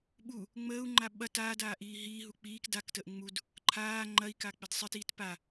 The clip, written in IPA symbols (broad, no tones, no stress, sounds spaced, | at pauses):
ɓ u | ŋ͡m əː u̯ ŋ͡ǃ a ɓ ɐ t aː d aː ʔ iː ɦ iː ɦ u k͡p iː k d a k t əː ʔ ŋ͡m u d | ǃʰ aː ŋ͡ǃ ɐ i̯ k a k͡p ɪ d sˤ ɪ t iː t p a